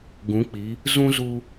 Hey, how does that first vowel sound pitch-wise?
rising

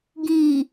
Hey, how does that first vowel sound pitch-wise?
low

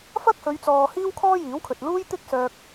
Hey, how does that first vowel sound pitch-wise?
high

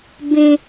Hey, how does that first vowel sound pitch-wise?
high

